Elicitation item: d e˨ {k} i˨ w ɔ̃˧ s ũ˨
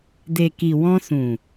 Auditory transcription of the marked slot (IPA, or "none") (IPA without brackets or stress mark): k